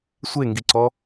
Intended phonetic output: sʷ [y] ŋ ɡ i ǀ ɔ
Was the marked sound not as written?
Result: yes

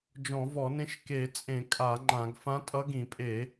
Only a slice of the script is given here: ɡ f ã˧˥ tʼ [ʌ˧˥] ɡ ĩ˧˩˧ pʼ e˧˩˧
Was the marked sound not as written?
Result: no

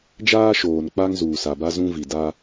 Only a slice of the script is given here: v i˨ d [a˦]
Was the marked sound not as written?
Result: no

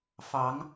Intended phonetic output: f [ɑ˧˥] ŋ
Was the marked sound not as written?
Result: no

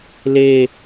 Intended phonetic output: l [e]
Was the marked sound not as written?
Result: no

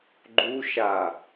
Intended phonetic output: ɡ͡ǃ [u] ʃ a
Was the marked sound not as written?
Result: no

